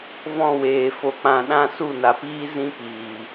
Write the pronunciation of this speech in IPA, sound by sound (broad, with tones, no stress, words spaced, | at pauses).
vɔ̃˦˨weː˨ fo˨k͡pã˨ ɗã˦˨su˦˨na˨piː˦ zĩ˦piː˨